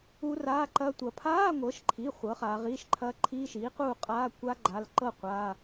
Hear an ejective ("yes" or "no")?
yes